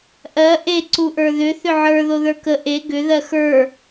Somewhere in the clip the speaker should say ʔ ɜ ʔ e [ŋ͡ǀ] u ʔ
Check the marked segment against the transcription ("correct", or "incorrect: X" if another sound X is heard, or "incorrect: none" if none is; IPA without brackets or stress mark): incorrect: ǀ